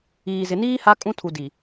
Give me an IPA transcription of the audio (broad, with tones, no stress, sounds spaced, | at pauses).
iː˨ z ɪ˨ n iː˦ h a˦ kʼ ũ˦ tʰ u˨ d i˨